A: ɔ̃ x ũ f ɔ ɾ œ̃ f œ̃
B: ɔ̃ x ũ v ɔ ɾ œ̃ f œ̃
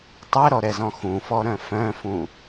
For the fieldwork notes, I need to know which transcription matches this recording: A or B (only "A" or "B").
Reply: A